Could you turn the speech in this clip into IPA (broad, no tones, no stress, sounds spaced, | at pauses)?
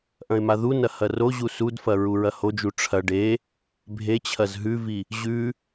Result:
ʔ ɐ̃ ɪ̯ m a ð u n ɐ h ɐ r o ʑ u s u d f ɐ ɹ u ɹ ɐ h o d͡ʒ u ʈ͡ʂʰ ɐ ɖ e | bʱ e t͡ɕʰ ɐ z ɦ ʉ v i | ʑ ʉ